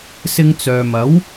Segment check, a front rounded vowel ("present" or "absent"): present